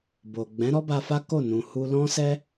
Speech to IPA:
bo˨ ɡ͡bɛ̃˨˦ɾɔ˦ba˧fa˦ ko˦˨ nũ˨hu˧lɔ̃˦sɛ˦

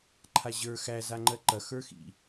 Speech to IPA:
ǃʰaʑə˞ xæ zaŋ͡ǃɜǃɐ xə˞xḭ

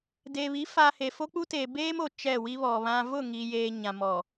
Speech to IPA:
de˨βi˨˦ fa˨ he˨fo˦k͡pu˦teː˨ beː˦mo˨ t͡ʃɛ˦˨wi˦βɔ˨βã˦ vʊ˦˨ ŋi˨jeː˨ ɲã˨mɔ˨

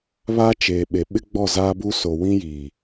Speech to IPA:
βa˦t͡ʃeː˨ɓe˨ ɓɪ˦ɡ͡bɔ˦˨ zaː˦bu˦ so˨ wĩ˦jiː˨

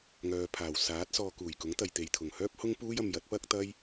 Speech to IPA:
ŋœː˨pʰaː˨˩w saː˨˥t̚sɔː˧ kuː˨˩jkʊ˨˥ŋt̪ɐ˨jt̪e˨j t̪ʰʊ˨˩ŋhœː˥p̚ hʊ˥ŋpuː˥jɐ˧m jɐ˨˥t̚pɐ˥k̚t̪ɐ˥j

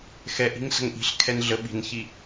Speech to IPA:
xɛʔi̤ŋ sə̤ŋʔi̤ɬ kʰɛnɮə ɓi̤nçi

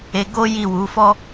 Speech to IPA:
e˧ɡo˦ ji˦˨wu˨˦fɔ˦

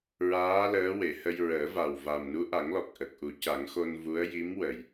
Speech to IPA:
ɹaː˧˥ ləː˧˥we˨˩˨hə˧j ɹəː˨˩˦va˨˩w va˨˩mnu˧˥ʔa˨˩˦ŋlɔ˨˩k̚ ʔə˨˩k̚ʔu˨˩˦ca˨˩˦ŋxo˧n vu˧˥ə̯ ji˧˥m wə˨˩˨j

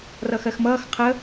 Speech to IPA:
rʌxɜxmʌːx qʰə

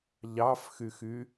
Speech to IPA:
ʎɑfxyxy

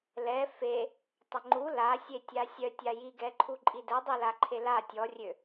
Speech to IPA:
lɛ fe | tˤəŋ͡ǃu lasʲetʲa sʲœtʲa jiɡɛǃʰu ǃʼidɛdˤi laǃʰela tʲɔrʲø

